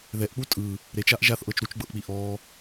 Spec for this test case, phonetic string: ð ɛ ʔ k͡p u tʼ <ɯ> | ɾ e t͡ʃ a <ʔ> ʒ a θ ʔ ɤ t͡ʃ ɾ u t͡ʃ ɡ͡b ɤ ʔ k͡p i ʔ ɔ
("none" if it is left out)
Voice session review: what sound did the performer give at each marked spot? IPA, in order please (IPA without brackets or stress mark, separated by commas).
ɯ, ʔ